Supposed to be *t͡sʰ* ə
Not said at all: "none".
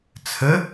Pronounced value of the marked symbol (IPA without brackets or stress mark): t͡sʰ